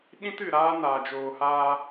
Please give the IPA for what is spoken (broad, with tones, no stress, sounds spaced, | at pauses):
ɗ ĩ˦ t ɨ˨ ɾ aː˦ n aː˨ d͡ʒ oː˨ h aː˧